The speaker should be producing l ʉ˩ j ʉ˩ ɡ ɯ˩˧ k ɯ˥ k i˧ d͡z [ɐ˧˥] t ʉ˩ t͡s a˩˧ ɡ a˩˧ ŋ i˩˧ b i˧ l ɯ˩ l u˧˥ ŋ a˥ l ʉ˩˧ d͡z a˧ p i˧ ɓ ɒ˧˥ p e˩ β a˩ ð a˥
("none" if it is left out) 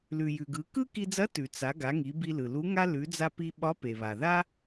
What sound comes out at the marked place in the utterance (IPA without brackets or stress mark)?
ɐ˧˥